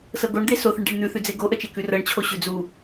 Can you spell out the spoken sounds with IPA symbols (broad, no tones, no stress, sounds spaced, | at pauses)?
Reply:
s ɤ ɡ o ɳ d̪ e s o θ ə ɳ ɖ e ɳ n̪ ʉ θ ʉ d͡z e ɡ o ʔ ə t͡ʃ e k ʉ r ɤ ɳ t͡ɕʰ o ɕ ʉ d͡z u